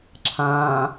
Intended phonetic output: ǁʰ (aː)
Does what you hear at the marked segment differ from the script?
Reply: yes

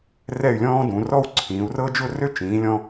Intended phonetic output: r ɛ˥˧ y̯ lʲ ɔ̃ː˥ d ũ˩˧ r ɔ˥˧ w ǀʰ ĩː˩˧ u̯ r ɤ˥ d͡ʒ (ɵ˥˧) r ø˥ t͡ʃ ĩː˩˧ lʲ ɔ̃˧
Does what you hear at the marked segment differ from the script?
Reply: yes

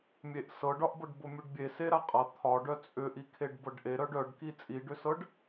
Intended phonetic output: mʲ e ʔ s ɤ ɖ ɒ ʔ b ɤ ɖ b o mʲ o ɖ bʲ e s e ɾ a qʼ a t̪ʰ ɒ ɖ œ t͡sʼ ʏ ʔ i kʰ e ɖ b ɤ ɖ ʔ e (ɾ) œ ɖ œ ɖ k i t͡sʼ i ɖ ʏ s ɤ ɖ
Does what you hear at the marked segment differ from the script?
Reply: no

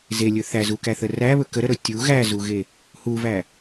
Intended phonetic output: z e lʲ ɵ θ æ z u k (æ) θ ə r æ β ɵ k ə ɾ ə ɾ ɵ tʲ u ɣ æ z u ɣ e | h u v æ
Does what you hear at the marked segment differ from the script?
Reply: no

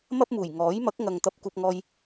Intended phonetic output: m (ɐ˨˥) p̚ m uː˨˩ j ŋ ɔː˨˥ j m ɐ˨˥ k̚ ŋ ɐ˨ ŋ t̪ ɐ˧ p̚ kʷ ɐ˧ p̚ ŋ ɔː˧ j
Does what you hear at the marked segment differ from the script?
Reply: yes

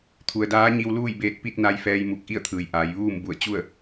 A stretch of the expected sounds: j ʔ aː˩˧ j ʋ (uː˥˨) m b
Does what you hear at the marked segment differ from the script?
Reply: no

